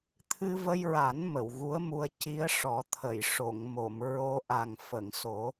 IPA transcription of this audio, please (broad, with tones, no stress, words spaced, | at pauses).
t̪ʰɨ˧və˧jɹa˨˩˦n mə˨˩˨wɣu˧˥ə̯mu˧ə̯ ci˧˥ə̯ʂɔ˨˩˦ t̪ʰə˨˩˨j ʂo˨˩˨ŋmo˨˩˨m ɹo˧ ʔa˨˩ŋfə˨˩˨ŋso˨˩˦